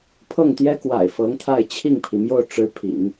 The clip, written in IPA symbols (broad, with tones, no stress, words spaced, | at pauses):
pʰɤ˥˩ŋt̪jɛ˥kwa̰˨˩ɪ̯ fɤ˧˥ŋt̪ʰa˥˧ɪ̯ t͡ɕʰi˥˩ŋpʰi˩mjo˥˩ʊ̯ʈ͡ʂɻ̩˧˥ pʰḭ˨˩˦ŋ